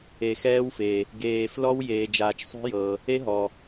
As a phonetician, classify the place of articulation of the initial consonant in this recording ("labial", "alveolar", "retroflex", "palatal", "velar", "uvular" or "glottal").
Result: velar